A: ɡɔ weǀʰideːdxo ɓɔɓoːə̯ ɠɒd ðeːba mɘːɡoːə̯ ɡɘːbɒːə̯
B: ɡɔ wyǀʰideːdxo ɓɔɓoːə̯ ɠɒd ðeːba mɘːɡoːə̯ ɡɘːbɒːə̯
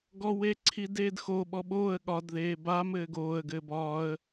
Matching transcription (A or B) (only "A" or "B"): A